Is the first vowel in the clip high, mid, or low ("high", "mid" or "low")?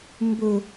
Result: mid